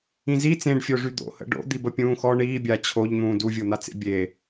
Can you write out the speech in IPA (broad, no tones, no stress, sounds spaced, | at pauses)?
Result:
ĩ z i t͡s ẽ ɖ fʲ o ʐ y d̪ o̰ h ə̰ ɖ o̰ d̪ i b ə pʲ ũː x ɔ ɳ iː bʲ a t͡ɕʰ o ʎ n̪ ũː d u vʲ o n̪ a t͡s ḛ bʲ e